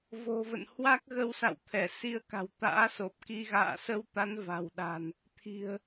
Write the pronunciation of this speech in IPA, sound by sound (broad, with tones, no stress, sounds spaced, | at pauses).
v o̤˨˩ v ə̰˧˨ n h w a˦˥ k̚ ɣ ə˧ w s a̰˧˨ w t̪ʰ ɛ˧˩ s i˧ ə̯ k a̤˨˩ w t̪ a̰ː˧˥ s o˨˩ p̚ k i˧ ɣ a̰ː˧˨ s ə˧ w t̪ a˨˦ n v a̤˨˩ w ɗ a̤˨˩ n | t̪ʰ i̤˨˩ ə̯